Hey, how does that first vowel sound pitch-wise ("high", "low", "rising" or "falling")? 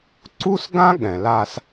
high